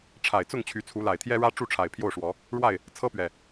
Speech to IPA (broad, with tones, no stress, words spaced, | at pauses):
ʈ͡ʂʰa˨˩ɪ̯t͡sʊ˥˨ŋ t͡ɕʰy˨˦t͡sʰu˨˦ la˨˩ɪ̯t̪ʰjɛ˦ɻä˦ ʈ͡ʂu˥˨ʈ͡ʂʰa˨˩ɪ̯ pʰjo˥˨ʊ̯ʂwɔ˨˦ | ɻwa˥˨ɪ̯ | t͡sʰɤ˦pɥɛ˨˩